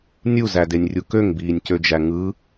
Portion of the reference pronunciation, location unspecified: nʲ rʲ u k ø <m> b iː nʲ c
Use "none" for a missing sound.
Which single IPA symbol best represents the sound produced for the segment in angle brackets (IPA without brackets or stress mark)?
ŋ